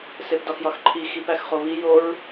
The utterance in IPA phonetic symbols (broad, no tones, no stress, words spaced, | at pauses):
sepdɒxjɒxǃʰi xipæxχoβi joɹ